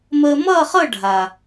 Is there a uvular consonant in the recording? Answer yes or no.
yes